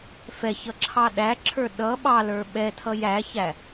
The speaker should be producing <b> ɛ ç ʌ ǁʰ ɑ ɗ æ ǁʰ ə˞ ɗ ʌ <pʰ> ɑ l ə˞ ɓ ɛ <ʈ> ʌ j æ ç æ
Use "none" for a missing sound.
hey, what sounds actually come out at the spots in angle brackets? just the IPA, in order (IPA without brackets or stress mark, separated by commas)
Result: f, ɓ, tʰ